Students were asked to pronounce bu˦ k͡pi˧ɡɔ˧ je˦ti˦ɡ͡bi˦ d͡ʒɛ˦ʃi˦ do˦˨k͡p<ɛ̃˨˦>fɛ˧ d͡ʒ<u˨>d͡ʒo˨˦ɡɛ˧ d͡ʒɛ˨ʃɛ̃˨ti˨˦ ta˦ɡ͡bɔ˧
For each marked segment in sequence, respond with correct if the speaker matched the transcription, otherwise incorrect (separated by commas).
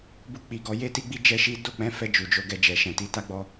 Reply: correct, correct